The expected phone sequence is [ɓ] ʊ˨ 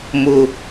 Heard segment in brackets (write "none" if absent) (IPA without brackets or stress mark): m